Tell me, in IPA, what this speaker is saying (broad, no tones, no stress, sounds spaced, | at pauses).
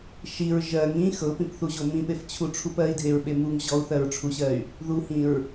ʃ i ɹ ʒ ɜ ŋ ĩ x ɤ p ĩ p θ u ʑ o m ĩ p e f t͡ɕʰ u ʈ͡ʂʰ u p ɜ i̯ dʱ e ɹ ɓ e m u ŋ ʑ ɔ u̯ θ ɜ ɹ ʈ͡ʂʰ u ɕ ɜ y̯ | ð u h ĩ ɹ